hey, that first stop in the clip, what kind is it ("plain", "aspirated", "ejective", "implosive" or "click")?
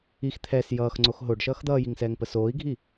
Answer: aspirated